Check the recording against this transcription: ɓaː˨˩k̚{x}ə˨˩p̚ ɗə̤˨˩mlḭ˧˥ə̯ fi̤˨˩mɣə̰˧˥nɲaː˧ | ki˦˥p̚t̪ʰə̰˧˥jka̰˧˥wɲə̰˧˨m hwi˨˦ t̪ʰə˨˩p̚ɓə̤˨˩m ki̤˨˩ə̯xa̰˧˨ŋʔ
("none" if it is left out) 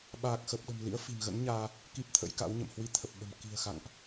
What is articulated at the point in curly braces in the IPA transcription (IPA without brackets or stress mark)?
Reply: x